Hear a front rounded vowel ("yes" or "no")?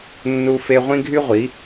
yes